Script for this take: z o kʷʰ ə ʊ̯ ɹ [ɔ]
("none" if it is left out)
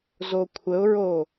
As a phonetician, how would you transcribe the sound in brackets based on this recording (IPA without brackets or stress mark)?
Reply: o